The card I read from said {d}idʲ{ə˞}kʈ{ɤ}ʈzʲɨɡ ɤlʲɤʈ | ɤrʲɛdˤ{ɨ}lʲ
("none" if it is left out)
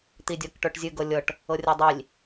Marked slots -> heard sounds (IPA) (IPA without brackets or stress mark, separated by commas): t̪, ɤ, ə˞, i